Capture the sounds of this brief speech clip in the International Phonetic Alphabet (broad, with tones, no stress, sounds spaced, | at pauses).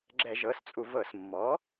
ɡ͡ǁ ɛ˧˩˧ ʒ ɤ˩˥ s t͡sʼ u˧˩˧ v ɤ˧˩˧ s mː ɔ˩˥